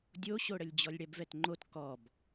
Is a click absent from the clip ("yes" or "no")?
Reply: no